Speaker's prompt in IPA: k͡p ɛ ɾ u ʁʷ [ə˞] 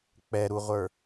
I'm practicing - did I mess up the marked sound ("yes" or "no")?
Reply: no